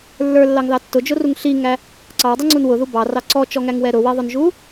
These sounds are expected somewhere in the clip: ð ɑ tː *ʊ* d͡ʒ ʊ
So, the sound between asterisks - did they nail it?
yes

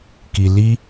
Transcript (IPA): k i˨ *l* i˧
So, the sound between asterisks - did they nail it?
yes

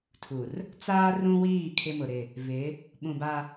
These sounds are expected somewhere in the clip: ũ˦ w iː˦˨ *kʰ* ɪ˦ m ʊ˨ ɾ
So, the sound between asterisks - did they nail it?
yes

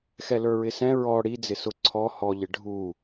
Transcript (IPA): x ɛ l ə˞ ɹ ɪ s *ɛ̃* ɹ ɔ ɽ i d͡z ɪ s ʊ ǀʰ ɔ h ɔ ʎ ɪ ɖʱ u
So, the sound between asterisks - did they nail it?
yes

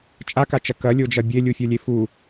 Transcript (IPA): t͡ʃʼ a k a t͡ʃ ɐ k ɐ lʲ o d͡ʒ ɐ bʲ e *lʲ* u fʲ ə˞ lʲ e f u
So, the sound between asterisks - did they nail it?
yes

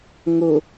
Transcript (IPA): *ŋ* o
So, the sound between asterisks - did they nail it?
yes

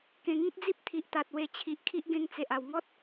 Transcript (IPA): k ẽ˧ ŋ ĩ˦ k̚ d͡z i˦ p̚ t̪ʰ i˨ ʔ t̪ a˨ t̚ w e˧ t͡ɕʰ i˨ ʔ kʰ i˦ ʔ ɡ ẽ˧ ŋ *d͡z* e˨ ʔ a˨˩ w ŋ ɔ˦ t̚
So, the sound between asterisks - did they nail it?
no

